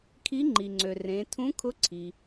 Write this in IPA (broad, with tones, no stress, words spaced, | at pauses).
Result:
kʰi˧˥ŋ͡ǃi˩ŋ͡ǀø˩ rẽ˩˧ tʰũ˧˥kʰʊ˧˥ǀʰi˩